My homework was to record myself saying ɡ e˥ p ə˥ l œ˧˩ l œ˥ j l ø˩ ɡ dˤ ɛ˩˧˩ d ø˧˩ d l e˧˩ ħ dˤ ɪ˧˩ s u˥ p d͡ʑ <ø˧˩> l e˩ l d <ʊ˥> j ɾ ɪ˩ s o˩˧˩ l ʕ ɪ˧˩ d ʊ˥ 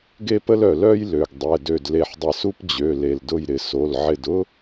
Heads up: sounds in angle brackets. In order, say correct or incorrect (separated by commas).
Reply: incorrect, incorrect